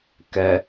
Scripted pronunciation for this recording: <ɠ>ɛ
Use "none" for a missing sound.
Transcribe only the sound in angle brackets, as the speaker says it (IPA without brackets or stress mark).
k